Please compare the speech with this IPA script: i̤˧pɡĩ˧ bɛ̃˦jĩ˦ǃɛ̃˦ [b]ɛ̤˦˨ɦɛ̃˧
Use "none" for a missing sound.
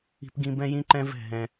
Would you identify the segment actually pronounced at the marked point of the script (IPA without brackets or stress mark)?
v